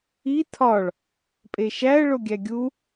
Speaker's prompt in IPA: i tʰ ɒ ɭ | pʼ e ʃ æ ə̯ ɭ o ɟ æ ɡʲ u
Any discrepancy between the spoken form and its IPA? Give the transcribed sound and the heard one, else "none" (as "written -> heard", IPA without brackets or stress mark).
ɟ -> ɡʲ